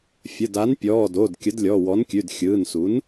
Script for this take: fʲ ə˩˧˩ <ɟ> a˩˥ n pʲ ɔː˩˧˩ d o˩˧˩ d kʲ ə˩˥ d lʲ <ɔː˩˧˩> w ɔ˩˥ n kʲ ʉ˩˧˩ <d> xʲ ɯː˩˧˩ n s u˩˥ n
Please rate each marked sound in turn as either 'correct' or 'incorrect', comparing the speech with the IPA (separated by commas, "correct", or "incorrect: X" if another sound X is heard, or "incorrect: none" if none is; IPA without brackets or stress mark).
incorrect: d, incorrect: ɔ˩˧˩, correct